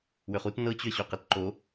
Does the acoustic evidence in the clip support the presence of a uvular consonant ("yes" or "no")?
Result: yes